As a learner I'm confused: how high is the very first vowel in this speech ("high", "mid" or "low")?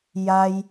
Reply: low